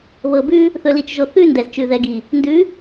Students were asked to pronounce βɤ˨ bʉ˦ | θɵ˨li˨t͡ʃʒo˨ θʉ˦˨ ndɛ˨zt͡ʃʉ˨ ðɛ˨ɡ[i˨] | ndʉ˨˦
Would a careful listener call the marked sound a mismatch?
no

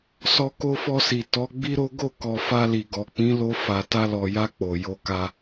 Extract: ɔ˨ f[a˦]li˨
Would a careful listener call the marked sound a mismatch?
yes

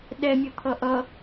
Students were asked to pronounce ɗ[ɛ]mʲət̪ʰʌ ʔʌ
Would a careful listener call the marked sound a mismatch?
no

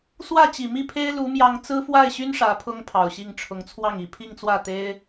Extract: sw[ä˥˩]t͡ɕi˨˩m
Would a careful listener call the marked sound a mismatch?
no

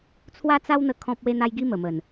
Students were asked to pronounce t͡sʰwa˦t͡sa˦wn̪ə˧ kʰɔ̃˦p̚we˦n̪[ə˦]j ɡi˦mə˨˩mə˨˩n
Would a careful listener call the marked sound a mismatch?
yes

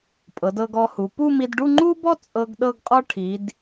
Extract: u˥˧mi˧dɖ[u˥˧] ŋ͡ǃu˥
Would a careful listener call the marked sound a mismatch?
no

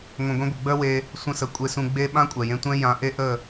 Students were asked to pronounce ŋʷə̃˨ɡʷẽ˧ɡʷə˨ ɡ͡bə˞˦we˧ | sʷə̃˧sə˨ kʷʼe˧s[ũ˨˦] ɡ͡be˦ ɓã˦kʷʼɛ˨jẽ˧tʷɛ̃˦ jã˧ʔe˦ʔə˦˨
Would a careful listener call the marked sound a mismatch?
yes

